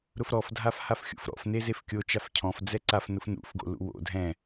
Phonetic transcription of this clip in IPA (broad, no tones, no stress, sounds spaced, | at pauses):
ɾ ʊ f ɾ ɔ f dʱ a f h a f xʲ ṵ f ɾ ɔ̰ f n e z e f kʲ o t͡ʃ a f cʰ ɔ̃ f d͡z ɛ ǀ a f n ʊ f n ṵ f ɡ o̰ l ṵ w o̰ dʱ ɛ̃